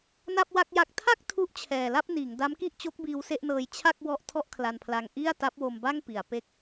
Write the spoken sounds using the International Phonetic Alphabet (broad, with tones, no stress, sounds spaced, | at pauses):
n a˥˩ p̚ w a˥˩ k̚ j a˦˥ k̚ tʰ a˥˩ k̚ tʰ u˦˥ ʔ t͡ɕʰ ɛː˨˩ l a˥˩ p̚ n iː˩˦ ŋ d a˦˥ m k i˥˩ ʔ t͡ɕ o˦˥ k̚ b iː˧ w s e˥˩ ʔ n ɤː˧ j t͡ɕʰ a˥˩ k̚ w ɔ˦˥ ʔ tʰ ɔ˥˩ ʔ kʰ l a˧ n pʰ l a˧ ŋ ʔ i˥˩ a̯ t a˦˥ p̚ w o˧ m b a˥˩ ŋ p i˩˦ a̯ p e˥˩ k̚